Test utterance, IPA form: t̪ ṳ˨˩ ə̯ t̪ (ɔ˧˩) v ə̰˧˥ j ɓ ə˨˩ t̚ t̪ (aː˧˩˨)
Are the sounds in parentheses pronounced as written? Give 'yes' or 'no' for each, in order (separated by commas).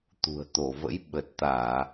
no, yes